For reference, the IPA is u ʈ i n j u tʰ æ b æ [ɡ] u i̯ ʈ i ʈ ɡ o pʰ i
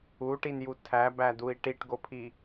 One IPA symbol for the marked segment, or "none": d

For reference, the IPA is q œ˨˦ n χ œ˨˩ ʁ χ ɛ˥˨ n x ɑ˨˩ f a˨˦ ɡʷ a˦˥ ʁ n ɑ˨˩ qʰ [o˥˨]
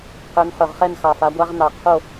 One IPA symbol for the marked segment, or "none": o˥˨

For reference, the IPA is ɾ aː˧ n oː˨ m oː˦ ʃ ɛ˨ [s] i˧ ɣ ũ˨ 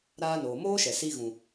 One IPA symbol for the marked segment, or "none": s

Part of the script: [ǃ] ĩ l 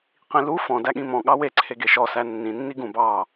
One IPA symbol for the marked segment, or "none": q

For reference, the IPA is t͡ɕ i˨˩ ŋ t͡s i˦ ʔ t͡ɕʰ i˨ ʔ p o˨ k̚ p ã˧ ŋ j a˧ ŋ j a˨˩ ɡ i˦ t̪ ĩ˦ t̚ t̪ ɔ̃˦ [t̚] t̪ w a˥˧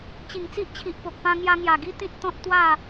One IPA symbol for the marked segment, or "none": t̚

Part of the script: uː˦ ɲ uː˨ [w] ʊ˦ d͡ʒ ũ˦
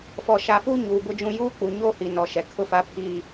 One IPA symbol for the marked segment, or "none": b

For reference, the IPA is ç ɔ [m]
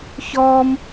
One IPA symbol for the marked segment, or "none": m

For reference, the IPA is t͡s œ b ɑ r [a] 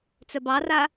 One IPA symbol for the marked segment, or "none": a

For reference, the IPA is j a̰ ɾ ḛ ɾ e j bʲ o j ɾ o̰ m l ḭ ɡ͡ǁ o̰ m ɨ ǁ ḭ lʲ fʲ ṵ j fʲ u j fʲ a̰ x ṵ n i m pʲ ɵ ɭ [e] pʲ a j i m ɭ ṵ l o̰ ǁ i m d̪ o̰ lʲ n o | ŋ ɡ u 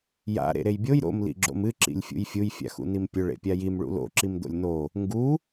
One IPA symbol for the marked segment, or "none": ḛ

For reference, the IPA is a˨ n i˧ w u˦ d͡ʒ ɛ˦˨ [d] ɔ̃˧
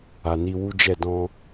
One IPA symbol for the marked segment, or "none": d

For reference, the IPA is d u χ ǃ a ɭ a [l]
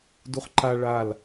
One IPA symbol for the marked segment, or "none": l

